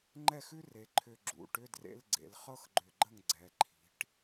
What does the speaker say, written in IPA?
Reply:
ŋ͡ǃɛ˥˨xʉ˥ re˩˧ǃʰʏ˧˩ ɡ͡ǁṵ˩˧˩ʈʏ˧˥˧ drḛ˧˥˧lɡ͡ǀḛ˩˧l χɤ˥xɡ͡ǃʏ˧˩ɡ͡ǃə˥˨ŋ ɡ͡ǀɛ˩˧ǃʰi̤˩˧ʈ

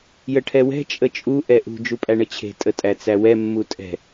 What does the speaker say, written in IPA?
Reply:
jəʈʰɛwɛ̤ t͡ʃʼət͡ʃʼu ʔɛʔṳ d͡ʒupʼæɳət͡ɕʰe̤ tʼətʼæt͡sæwɛ mːutʼɛ̤

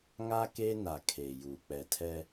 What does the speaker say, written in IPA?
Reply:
ŋa˦ keː˦na˨ kʰeː˨juː˨ k͡pɛ˨tʰɛ˦

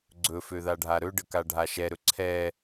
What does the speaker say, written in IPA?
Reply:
ɡ͡ǀɵføðaɖʱa ɾɵɖəka ɖʱaʃɛɾɵ ǀʰɛ

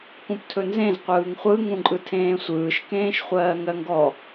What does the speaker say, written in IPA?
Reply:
kũptʰɵnzẽz qʷɯːŋχʷɯ ŋũǃʼɯtʰẽːsʷɯːʃ kẽːʃχʷɜːŋɜŋɡɔ

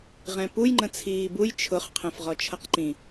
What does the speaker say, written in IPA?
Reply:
ʁɛ̃puj ŋ͡ǃə̃t͡sʰiːbuj t͡ʃʰʊχ qʰɛ̃fʁɔt͡ʃʰʌqǃĩ

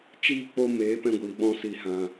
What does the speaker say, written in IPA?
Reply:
t͡ʃiː˦˨k͡po˧meː˨˦ pɛ̃˧ɡʷiː˨ɓɔ̃˧ si˦˨hã˧

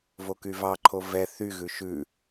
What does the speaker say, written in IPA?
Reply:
vokyvɑǃʰo vɛ θyɣʉ ʃʉ

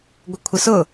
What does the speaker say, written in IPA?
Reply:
ɡʷəkʷʰəsʊ

